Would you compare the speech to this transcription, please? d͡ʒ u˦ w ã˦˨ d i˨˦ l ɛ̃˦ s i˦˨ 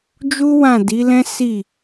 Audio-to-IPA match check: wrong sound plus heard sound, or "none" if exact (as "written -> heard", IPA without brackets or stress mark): none